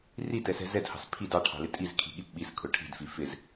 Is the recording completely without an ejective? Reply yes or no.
no